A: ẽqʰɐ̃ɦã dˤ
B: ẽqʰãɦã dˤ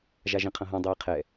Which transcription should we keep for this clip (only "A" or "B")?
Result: A